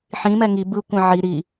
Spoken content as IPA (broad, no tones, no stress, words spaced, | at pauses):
ħĩmɛ ŋi bɯ kʷɛ̃ʕi ɾi